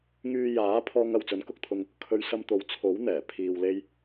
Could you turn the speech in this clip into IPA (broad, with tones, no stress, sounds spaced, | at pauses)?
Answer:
ŋ yː˧ j aː˨˥ pʰ ɔː˧ ŋ ɐ˨ w t͡s ɵ˨˥ n k ʊ˧ k̚ t̪ʰ ʊ˧ ŋ | kʰ ɵ˨˧ ɥ s ɐ˧ m t̪ o˨ w t͡sʰ o˨˥ w n̪ ɛː˨˩ pʰ iː˧ w l e˥ j